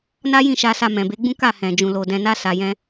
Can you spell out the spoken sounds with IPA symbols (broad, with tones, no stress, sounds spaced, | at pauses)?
n a˦ j ĩ˦˨ ʃ a˧ s a˧ m ɛ̃˨ b e˨˦ ɡ͡b ũ˦ k a˦˨ h ɛ̃˨ d͡ʒ ũ˧ l o˧ d ɛ̃˧ n a˦ s a˧ j ɛ̃˦